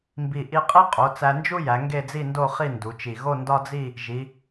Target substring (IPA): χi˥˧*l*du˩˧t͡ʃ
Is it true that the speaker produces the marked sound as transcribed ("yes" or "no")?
no